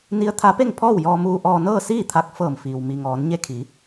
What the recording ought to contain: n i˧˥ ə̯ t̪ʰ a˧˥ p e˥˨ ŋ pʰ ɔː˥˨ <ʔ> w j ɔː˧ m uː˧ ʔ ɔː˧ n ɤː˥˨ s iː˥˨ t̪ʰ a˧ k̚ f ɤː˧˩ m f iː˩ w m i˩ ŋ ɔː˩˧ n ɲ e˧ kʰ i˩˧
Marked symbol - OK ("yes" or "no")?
no